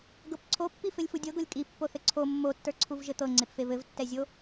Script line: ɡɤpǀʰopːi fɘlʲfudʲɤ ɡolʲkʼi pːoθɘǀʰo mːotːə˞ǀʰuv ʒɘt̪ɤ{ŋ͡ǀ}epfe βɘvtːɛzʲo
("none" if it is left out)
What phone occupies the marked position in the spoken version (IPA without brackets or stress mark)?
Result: ŋ͡ǀ